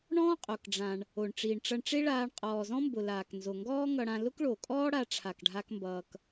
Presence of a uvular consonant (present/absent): present